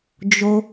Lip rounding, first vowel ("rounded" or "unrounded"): rounded